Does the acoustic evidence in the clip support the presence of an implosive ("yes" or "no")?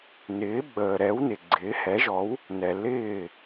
yes